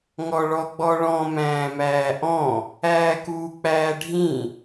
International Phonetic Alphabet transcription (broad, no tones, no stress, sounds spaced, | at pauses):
ŋ ɔ ɭ ɔ ɡ͡b ɔ ɭ ɔ̃ m æ̃ː m æː ʔ ɔ̃ | æː k uː k͡p æː ɖʱ ĩ